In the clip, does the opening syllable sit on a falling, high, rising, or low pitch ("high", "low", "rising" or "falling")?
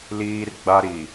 high